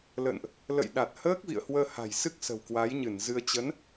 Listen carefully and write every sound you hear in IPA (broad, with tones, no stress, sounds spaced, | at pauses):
l ə̰˧˨ n ʔ | l ə̰˧˨ j ɗ a˨˩ t̚ h əː˦˥ k̚ v ḭ˧˨ ə̯ h w əː˧ h a̤˨˩ j s ɨ˦˥ k̚ s ə̤˨˩ w k w a˨˦ j ɲ ɨ˧˩ n z ɨ˧ ə̯ t͡ɕ ə˨˦ n